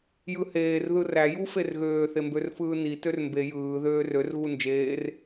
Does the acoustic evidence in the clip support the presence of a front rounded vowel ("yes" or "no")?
yes